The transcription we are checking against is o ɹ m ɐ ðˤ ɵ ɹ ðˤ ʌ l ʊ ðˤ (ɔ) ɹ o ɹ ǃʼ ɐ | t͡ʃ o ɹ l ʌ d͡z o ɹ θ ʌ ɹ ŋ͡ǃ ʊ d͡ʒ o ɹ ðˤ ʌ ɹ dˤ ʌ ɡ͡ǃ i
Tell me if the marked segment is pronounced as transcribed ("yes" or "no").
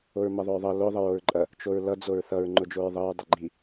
no